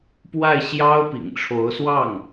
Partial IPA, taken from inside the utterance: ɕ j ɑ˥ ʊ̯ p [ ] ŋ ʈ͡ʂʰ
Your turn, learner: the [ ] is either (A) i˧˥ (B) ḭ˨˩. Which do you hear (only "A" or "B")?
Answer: B